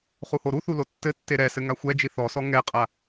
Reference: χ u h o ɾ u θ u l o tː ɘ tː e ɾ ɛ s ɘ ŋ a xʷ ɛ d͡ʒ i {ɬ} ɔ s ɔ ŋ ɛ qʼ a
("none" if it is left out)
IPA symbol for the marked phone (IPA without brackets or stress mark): θ